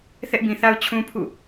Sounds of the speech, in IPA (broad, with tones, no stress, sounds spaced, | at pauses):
θ ɛ˦ ʔ b ĩ˨ θ a˦ ʊ̯ t͡ɕʰ ũ˦ pʰ ṵ˦˨